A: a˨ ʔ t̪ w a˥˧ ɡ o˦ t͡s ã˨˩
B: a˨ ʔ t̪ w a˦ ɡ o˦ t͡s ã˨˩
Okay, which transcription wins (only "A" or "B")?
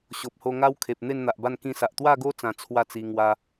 A